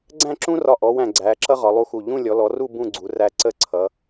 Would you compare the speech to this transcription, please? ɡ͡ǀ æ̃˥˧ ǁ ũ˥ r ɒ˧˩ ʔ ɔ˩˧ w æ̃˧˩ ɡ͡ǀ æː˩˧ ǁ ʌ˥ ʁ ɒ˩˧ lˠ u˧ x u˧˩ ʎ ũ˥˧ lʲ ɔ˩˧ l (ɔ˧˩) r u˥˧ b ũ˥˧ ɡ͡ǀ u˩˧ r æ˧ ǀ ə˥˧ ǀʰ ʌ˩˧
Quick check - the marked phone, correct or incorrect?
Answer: incorrect